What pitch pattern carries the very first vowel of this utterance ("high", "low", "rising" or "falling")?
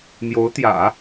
rising